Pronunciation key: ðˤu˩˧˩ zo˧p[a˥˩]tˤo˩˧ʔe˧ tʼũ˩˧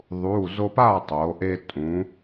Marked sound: correct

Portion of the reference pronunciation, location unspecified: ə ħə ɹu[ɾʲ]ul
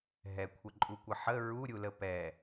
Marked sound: correct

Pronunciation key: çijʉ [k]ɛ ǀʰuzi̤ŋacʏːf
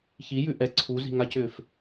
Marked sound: incorrect: ʔ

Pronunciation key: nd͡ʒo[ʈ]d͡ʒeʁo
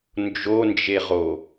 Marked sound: incorrect: n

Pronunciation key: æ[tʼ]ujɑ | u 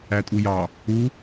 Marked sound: correct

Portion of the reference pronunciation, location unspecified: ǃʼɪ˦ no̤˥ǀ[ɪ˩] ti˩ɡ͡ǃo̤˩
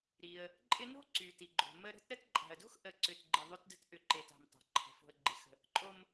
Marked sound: incorrect: y˩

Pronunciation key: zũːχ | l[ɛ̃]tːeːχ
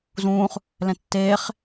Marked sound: correct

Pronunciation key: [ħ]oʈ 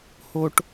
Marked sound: incorrect: h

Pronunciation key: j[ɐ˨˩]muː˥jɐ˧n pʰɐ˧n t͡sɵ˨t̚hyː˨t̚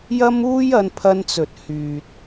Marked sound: incorrect: ɐ˥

